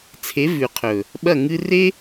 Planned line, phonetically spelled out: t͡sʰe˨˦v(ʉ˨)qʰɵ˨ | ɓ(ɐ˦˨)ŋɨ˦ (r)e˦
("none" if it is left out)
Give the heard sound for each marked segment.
ʉ˨, ɐ˦˨, r

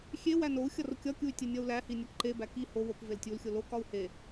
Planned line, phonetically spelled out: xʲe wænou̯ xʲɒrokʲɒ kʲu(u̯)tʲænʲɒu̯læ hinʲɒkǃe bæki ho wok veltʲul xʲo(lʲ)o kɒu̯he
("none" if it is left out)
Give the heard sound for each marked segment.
y̯, l

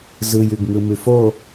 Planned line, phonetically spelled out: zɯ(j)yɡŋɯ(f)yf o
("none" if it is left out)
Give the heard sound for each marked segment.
j, m

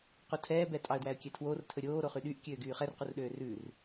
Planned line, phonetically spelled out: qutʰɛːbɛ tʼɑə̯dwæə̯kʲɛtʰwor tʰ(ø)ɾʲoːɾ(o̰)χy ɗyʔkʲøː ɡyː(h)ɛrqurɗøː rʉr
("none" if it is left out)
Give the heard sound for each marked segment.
ɵ, o, χ

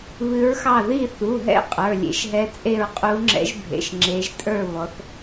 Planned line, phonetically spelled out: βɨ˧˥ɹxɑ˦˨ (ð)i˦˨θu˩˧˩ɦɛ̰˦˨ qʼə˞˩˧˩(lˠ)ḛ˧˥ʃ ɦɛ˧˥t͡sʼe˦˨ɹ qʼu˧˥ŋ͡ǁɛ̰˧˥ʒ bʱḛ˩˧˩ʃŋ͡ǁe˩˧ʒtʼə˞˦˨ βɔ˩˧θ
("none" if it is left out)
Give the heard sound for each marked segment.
ð, lʲ

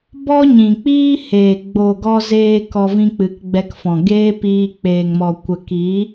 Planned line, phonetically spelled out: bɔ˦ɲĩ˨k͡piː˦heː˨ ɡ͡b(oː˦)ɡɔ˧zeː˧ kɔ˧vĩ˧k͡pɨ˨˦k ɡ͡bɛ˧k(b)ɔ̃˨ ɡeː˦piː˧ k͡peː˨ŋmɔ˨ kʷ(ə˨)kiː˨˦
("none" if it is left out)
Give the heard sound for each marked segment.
oː˨, f, ə˨

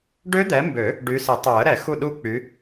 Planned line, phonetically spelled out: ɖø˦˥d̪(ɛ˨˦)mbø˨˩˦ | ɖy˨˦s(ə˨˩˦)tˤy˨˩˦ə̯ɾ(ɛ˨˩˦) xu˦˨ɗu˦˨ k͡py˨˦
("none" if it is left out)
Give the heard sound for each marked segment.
ɛ˨˦, ɪ˨˩˦, ɛ˨˩˦

